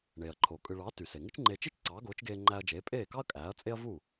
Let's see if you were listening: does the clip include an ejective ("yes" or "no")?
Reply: yes